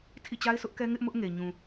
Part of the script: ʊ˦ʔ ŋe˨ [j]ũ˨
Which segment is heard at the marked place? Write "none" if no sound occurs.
ɲ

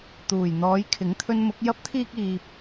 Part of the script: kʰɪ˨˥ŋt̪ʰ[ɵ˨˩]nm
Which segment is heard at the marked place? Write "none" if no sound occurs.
ɵ˧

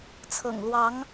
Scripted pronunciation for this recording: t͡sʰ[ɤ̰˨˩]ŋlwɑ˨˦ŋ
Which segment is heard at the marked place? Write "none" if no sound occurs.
ɤ̰˨˩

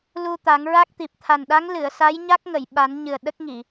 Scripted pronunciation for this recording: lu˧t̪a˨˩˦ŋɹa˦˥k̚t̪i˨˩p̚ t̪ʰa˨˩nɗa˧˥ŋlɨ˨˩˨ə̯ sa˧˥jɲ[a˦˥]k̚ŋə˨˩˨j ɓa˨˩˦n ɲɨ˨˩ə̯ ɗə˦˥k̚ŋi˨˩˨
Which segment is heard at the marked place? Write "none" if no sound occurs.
a˦˥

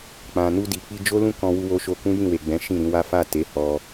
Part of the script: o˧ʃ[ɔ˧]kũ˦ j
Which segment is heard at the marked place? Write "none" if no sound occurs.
o˧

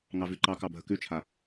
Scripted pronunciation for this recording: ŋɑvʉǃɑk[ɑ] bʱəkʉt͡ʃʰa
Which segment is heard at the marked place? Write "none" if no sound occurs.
ɑ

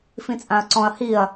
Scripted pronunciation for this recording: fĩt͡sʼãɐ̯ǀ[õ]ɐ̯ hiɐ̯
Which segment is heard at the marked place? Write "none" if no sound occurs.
ɔ̃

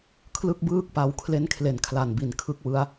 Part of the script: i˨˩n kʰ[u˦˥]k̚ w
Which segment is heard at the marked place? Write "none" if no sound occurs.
ɯ˦˥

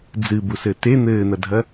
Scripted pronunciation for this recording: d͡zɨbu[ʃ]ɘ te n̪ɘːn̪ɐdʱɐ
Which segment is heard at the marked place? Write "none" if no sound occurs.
s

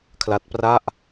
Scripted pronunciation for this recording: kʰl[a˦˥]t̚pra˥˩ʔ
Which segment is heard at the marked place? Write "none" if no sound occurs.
a˦˥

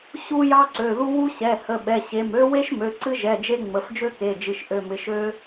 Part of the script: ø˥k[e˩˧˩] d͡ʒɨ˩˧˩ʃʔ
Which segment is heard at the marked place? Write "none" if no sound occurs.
e˩˧˩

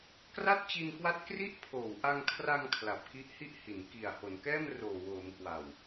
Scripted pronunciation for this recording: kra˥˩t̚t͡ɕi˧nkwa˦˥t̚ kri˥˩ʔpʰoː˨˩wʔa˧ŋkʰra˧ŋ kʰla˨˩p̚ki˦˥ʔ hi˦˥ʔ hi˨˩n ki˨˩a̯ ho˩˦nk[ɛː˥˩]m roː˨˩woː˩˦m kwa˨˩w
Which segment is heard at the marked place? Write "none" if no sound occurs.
ɛː˥˩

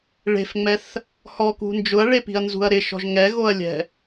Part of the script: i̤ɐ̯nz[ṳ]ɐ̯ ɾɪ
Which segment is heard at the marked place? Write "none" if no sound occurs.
ṳ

